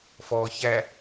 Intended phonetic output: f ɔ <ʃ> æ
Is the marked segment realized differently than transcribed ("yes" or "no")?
yes